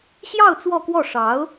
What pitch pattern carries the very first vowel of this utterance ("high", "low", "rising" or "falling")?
falling